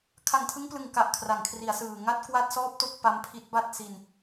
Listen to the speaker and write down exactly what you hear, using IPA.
kʰ a˨˩ ŋ tʰ ɯ˦˥ ŋ p l ɯ˨˩ ŋ k a˨˩ ʔ kʰ r a˩˦ ŋ kʰ r i˩˦ a̯ s ɯː˨˩ ŋ a˥˩ t̚ k w a˥˩ t̚ s ɔː˥˩ p̚ t o˥˩ k̚ p a˦˥ m pʰ i˦˥ t̚ b a˥˩ t̚ s i˧ n

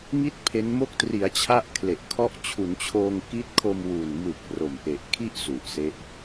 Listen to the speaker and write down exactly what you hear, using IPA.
ŋ i˥˩ t̚ pʰ e˦˥ n m o˦˥ k̚ t r i˩˦ a̯ t͡ɕʰ a˦˥ ʔ kʰ l e˨˩ ʔ kʰ ɔ˦˥ ʔ t͡ɕʰ u˩˦ n t͡ɕʰ oː˧ ŋ k i˦˥ t̚ kʰ o˧ m w u˨˩ n m ɯ˨˩ k̚ r o˨˩ m ʔ e˨˩ ʔ kʰ i˥˩ ʔ s u˨˩ ʔ s e˦˥ ʔ

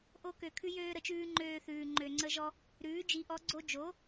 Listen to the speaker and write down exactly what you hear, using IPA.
ʔ o˦ k ø˨ kʰ ʉ˦ j øː˦ ɾ ə˨ t͡ʃ ʉː˦ ŋ͡ǃ øː˦ θ ʉː˨ ŋ͡ǃ ø˨ ŋ͡ǀ ə˦ ʒ ɔ˦ | ɾ ʉː˩˥ d͡ʒ i˩˥ ʔ ɔ˩˥ ɡ͡ǀ o˦ d͡ʒ o˩˥

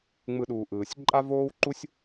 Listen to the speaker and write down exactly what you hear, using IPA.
ŋ͡m ɯ˨˩˦ ɗ uː˩ ʔ ɯː˩ sʲ ǃʼ a˥ v oː˥ w ǃ u˥ sʲ

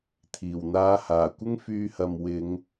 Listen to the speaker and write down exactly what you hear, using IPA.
t̪ʰ iː˨˩ w n̪ aː˧ h aː˨˩ kʷ ɪ˥ ŋ f yː˧ h ɐ˨ m w ɪ˨˧ ŋ

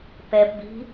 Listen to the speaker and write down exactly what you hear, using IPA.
p ɛ p b i̤

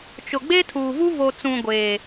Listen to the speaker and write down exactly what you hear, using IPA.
t͡ʃ ʊ˨ ɡ͡b e˦ tʰ uː˨ v u˦ v o˨ t͡s ũ˨ ɡʷ eː˨

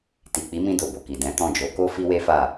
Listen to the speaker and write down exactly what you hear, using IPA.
t i˨ k͡p i˨˦ m ĩ˧ d o˨ b o˨ k i˨ d ɛ̃˨˦ t ɔ̃˦˨ d͡ʒ o˨˦ k o˦ f i˦ w e˦ f a˦˨

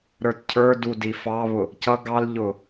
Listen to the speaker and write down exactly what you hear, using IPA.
ɾ ə˞ t cʰ ə˞ d u d i f ɑ β ʊ | c ʌ ɡ ɑ l ʎ ʊː

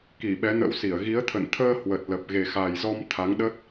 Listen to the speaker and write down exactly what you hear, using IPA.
k i˧˩ ɓ ɛ˨˦ n ə̰˧˥ w s i˧˩ ə̯ ɣ i˨˦ ə̯ t̪ʰ ə̰˧˨ n t̪ʰ əː˧ h w ə˨˩ t̚ l ə˨˩ p̚ ɣ e˨˩ x a˨˩ j z ɔ˧ m t̪ʰ a˨˦ ŋ ɗ ə˦˥ t̚

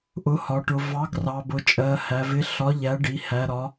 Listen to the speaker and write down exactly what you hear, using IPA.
ʔ ʊ˨˥ h ɒ˩˧ ʈ ʊ˩˧ v ɑ˨˥ ɡ r ɑ˩˧ b ʊ˩˧ t͡ʃʼ ɜ˩˧ h æ˩˧ v ɪ˨˥ ɬ ɒ˨˥ ʎ æ˨˥ ɖ i˩˧ h æ˩˧ ɾ ɒ˩˧

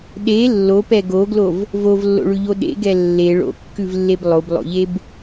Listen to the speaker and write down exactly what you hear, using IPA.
ɗ e lː o p ɛ ɡ o ɡ l o v | v o v lː o̰ ɭ ʉ ʎ o ɗ ḛ ɡ ɛ lː e ɭ o̰ kː ʉ v lː e b lˠ o b lˠ o̰ ʎ e b

